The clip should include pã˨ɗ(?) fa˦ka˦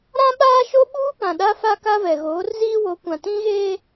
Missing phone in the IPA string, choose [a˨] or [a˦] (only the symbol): a˦